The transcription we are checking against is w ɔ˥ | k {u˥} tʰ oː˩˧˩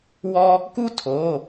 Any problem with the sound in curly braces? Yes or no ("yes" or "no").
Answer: no